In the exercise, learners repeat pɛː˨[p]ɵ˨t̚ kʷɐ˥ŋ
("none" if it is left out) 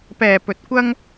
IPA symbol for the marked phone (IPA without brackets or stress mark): p